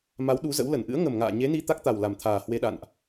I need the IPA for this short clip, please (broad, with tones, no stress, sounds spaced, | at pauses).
m a˨˦ w ɗ u˨˦ z ə̰˧˥ w l ə˧˩ n ʔ ɨ̰˧˥ ə̯ ŋ ə˨˩ m ŋ a̰ː˧˨ ɲ e˨˦ n i˧ t̪ a˦˥ k̚ t̪ a˨˩ w l a˨˩ m t̪ʰ aː˨˩ h w e˧ ɗ a̰˧˨ n ʔ